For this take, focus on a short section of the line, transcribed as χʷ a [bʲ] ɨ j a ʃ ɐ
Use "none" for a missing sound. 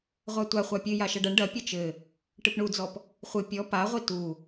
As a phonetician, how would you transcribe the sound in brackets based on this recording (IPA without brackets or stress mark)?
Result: pʲ